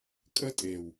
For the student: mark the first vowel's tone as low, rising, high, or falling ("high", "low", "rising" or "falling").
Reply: high